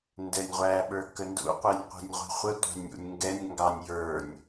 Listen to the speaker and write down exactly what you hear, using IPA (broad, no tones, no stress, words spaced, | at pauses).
ndɛnʲʁʷæ ɓə˞kəndṵ qʷinʲqʷi̤nʲʁʷi̤χʷə tʷɑ̤nʲṵnʲŋɡɛnʲ ŋɡɑnʲ jə˞nʲ